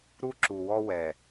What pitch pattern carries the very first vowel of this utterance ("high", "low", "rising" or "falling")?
high